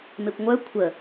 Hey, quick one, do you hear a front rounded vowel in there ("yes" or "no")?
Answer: yes